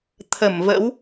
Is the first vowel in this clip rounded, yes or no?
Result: no